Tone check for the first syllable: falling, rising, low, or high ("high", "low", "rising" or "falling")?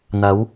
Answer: rising